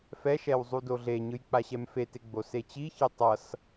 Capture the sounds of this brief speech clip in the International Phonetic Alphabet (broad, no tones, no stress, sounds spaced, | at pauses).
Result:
f ɛ ʃ ɛ w zˤ u d o ɮ e ɲ ɯ j k͡p a ɕ ɛ m f e t e ɡ͡b o s e t͡ɕ i ç i tˤ ʌ s